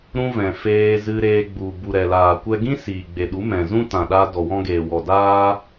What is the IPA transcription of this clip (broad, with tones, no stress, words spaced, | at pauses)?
ɾũ˦vɛ̃˨feː˧ zɨ˧ɾeː˧ɡ͡bu˨ bu˨ɾɛ˨laː˨ kʷɛ˧ɡĩ˦ siː˨ɡ͡be˨ɗu˨˦ mɛ̃˨zũ˦tã˨ɗa˧ dɔ˨wɔ̃˧ɡeː˨wɔ˨ daː˧